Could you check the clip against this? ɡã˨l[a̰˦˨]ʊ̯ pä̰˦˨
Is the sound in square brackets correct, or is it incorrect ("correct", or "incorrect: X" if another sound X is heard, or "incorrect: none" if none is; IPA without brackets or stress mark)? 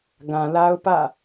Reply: incorrect: a˦